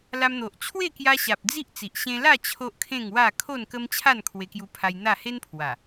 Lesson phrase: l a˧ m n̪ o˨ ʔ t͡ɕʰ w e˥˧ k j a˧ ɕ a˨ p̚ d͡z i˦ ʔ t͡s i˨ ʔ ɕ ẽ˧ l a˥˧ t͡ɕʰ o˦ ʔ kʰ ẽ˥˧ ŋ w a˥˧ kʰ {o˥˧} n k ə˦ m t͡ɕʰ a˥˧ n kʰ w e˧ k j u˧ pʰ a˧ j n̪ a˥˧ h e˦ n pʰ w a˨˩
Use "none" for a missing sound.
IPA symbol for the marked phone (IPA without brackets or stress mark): o˥˧